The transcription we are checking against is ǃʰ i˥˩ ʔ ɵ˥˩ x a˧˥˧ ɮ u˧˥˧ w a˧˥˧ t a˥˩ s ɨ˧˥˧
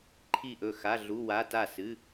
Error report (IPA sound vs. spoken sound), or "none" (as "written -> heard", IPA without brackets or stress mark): none